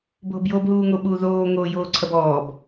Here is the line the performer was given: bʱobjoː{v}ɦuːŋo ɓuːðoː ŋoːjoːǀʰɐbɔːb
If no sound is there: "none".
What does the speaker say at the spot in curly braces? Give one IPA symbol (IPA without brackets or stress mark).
b